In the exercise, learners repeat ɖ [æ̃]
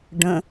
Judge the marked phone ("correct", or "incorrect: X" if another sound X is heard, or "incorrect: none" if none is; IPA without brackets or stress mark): incorrect: ə̃